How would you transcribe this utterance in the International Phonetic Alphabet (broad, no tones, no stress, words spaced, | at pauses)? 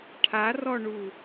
ʈʰarɔɳu